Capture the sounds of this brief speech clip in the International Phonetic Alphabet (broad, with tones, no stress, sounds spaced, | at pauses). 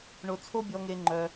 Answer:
ɳ o˧ t͡sʰ o˦ bʲ ɔ˧ ŋ e˧ ŋ͡ǃ œ˧